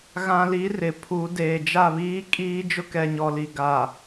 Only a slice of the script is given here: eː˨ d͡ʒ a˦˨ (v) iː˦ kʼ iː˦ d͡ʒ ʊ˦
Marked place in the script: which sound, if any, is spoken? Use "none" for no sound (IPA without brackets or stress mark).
β